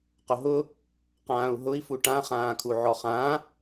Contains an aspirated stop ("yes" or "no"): yes